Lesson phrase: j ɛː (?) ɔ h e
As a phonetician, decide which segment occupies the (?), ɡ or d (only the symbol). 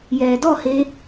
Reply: d